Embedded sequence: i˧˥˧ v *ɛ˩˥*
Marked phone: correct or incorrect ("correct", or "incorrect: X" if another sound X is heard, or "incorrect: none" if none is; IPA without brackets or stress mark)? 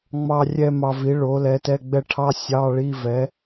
correct